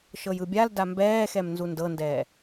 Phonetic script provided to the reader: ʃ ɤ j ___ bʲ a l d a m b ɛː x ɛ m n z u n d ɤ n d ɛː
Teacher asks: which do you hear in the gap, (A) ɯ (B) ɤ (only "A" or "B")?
A